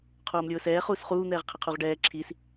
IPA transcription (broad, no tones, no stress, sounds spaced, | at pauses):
qʰ oː m lʲ ʊː s ɛː χ uː s χ uː n̪ ɛː ʁ qʰ ɪ qʰ u ʁ ɖ ɛː ǁʰ i s